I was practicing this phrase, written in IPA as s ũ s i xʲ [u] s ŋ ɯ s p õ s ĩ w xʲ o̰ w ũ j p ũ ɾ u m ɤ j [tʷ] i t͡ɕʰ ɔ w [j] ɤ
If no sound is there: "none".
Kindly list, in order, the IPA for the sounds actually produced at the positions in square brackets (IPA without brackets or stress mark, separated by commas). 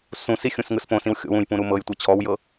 ũ, tʷ, j